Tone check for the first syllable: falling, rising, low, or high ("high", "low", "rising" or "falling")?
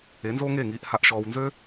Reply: rising